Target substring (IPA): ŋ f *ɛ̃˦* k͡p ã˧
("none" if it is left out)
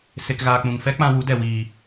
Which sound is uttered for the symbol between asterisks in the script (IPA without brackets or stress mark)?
ɛ˦